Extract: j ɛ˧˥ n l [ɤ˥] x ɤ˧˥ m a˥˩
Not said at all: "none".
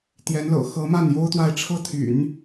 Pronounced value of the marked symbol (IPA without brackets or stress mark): ɤ̰˨˩